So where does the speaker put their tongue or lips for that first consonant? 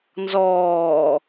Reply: tongue tip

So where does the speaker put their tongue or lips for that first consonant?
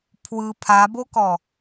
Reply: lips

